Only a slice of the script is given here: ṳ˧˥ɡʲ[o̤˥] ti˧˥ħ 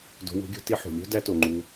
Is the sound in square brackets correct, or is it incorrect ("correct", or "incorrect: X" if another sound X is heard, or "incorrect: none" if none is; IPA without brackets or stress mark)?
correct